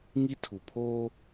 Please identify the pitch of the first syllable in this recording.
high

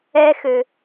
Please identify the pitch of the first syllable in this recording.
high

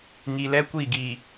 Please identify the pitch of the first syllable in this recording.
low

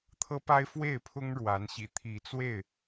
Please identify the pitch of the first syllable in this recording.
high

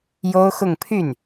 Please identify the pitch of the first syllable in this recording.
high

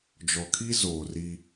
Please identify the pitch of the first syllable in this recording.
low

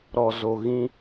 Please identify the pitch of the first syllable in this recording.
low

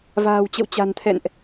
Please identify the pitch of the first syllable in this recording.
low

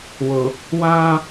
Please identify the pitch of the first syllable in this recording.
low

